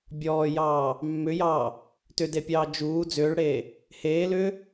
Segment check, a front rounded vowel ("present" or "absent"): present